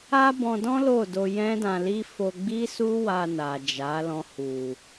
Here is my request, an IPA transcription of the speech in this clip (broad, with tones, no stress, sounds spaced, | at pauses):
a˦ b ɔ̃˧ d ɔ̃˦ l o˦˨ d o˧ j ɛ̃˦ d ã˧ l i˦ f o˧ ɡ͡b i˦ s u˦ w a˧ n a˨ d͡ʒ a˨˦ l ɔ̃˧ h u˨